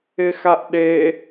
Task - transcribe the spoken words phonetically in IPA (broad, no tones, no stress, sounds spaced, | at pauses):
ɪ x a ʔ ɗ e